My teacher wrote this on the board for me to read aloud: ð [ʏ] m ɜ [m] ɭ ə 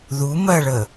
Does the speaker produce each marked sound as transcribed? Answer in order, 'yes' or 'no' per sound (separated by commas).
no, no